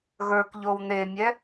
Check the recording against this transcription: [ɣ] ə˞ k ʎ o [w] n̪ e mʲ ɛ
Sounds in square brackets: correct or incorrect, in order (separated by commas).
correct, correct